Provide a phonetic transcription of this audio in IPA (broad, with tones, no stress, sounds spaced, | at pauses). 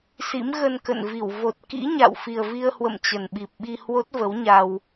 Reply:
s ḭ˧˥ m ɣ ə˧ n k ə̰˧˨ n v i˧˩ w v o˨˩ t̚ k ḭ˧˥ ɲ a̰˧˨ w f i˨˩ ə̯ v i˧ ə̯ h w ə̰˧˨ m t͡ɕ ə˨˩ n ɓ i˨˩ p̚ ɓ i˧ h w o˦˥ t̚ v ə˨˦ w ɲ a˧ w